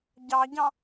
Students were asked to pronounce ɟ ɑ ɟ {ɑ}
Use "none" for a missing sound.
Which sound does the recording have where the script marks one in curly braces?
ɑ̃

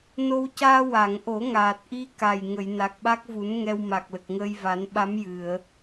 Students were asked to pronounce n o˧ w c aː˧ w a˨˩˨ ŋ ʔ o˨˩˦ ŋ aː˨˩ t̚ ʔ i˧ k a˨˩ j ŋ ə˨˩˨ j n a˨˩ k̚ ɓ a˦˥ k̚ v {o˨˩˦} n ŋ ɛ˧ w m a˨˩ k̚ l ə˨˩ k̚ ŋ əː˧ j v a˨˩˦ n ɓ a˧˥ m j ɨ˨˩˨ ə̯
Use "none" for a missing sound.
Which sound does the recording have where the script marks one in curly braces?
u˨˩˦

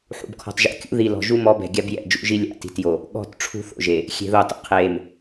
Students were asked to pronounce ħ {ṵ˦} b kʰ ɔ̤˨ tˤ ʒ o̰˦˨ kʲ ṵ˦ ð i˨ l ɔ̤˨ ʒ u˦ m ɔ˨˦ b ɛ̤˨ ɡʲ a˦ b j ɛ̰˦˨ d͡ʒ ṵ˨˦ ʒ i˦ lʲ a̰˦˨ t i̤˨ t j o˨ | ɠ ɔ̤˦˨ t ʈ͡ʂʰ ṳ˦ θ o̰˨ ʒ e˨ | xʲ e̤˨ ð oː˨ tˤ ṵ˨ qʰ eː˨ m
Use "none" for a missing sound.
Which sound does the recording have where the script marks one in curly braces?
ṵ˨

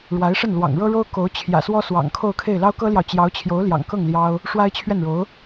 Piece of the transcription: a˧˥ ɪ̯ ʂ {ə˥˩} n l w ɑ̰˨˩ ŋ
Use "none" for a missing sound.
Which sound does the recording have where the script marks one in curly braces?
ə˥˩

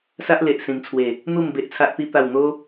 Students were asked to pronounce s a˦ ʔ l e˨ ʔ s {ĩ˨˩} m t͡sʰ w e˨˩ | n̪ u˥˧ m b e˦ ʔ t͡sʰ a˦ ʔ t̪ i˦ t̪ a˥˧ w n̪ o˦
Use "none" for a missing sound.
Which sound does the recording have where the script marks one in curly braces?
ĩ˨˩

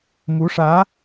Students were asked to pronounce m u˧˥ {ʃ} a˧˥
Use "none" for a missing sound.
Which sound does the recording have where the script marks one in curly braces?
ʂ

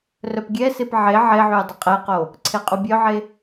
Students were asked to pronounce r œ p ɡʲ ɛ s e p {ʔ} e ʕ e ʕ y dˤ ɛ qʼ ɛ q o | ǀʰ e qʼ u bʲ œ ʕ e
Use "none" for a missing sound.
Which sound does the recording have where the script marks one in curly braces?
ʕ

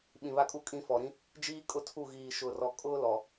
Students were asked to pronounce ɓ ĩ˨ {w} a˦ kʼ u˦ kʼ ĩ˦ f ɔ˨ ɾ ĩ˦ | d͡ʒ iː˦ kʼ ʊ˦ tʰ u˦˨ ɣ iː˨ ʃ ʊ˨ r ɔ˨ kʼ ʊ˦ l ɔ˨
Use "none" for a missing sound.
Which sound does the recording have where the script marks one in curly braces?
β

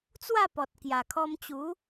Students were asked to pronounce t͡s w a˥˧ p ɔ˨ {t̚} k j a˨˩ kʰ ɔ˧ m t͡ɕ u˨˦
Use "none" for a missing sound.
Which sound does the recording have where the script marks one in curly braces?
t̚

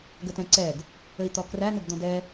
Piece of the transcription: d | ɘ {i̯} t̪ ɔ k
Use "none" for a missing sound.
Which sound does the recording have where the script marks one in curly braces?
i̯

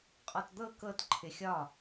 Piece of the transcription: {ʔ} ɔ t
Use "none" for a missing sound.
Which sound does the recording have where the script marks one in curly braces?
qʼ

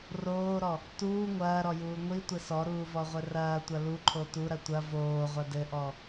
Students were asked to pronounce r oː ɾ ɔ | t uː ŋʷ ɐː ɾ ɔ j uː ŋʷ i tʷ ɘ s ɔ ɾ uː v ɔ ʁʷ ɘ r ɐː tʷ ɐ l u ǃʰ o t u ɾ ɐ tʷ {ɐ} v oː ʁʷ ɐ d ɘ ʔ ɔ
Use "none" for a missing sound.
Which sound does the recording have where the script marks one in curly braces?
ɐ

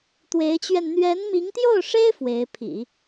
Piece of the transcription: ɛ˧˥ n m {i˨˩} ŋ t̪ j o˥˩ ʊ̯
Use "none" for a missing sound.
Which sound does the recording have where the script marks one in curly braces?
i˧˥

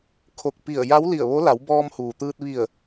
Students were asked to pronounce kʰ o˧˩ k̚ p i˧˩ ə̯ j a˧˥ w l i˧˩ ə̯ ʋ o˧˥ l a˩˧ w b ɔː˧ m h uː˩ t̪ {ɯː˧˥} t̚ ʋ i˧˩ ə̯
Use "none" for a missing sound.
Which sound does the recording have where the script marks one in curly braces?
ɯː˧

